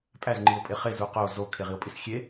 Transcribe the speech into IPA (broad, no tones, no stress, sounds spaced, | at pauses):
pʼ æ z ŋ͡ǃ i o̯ pʼ e χ e z u q o z o kʰ e ʁ i o̯ pʼ i s xʲ e